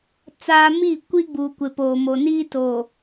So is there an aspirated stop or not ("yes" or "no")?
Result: no